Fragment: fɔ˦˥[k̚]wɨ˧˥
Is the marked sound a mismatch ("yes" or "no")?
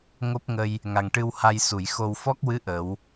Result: no